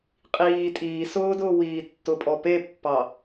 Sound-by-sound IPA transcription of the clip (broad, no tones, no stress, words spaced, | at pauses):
qʼiː tʼiː sʊːdʊː wiːtːʊpʼɔ pepːɑ